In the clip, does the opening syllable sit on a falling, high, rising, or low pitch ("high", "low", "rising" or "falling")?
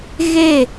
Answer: falling